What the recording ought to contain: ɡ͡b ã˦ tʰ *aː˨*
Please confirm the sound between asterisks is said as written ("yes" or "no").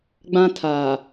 yes